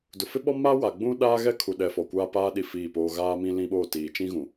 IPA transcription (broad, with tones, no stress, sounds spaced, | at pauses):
d ʊ˨ f ɪ˦ ɓ ɔ˦ m a˦ w a˨ ɡ͡b ũ˦ ɗ aː˦ ɣ ɛ˦ kʰ u˨ ɗ ɛ˨ f ɔ˨ kʷ aː˦ p aː˦ ɗ i˦˨ f iː˦˨ p oː˦ ɣ aː˦ m ĩ˦ l ĩ˦ ɓ oː˦˨ t iː˨ t͡ʃ ĩ˦ ɣ ũ˨